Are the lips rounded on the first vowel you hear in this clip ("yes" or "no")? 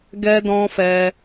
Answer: no